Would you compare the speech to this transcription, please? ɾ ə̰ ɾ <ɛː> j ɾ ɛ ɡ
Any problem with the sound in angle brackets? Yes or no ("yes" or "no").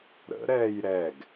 no